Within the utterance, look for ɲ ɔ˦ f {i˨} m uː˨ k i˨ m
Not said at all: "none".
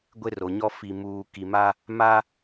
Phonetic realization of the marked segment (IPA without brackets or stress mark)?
i˨